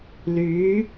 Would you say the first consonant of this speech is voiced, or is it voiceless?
voiced